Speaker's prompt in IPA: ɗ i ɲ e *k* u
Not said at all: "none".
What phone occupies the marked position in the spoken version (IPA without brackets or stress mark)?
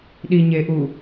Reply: ʔ